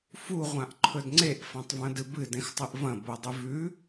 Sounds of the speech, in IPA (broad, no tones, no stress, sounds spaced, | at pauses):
f u ʁʷ ã ʔ ǃʰ ɵ d ŋ͡ǀ e ʔ f ã tˤ v ɐ̃ d ɨ b ɨ d ẽ x tˤ ɨ ʔ v ɐ̃ b o dˤ ʉ v ʉ